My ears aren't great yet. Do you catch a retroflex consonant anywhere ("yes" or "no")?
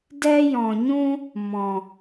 no